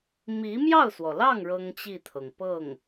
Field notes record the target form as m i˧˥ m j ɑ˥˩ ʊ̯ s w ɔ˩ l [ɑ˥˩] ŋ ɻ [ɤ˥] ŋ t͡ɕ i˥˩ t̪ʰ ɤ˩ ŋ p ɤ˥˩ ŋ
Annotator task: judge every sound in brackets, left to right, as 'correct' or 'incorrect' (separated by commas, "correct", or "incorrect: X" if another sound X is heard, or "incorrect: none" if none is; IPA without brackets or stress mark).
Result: correct, correct